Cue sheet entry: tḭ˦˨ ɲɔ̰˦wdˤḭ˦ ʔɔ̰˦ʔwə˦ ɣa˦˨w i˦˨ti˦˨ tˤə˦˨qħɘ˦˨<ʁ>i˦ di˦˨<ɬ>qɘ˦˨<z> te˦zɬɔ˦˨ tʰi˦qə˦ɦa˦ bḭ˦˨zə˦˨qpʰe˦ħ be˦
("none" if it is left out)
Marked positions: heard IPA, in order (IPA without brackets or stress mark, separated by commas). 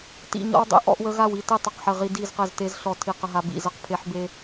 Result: ʁ, z, z